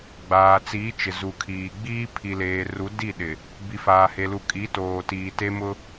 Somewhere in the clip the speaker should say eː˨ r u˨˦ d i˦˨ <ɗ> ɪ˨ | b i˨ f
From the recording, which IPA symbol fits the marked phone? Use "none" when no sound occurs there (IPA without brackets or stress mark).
ɗ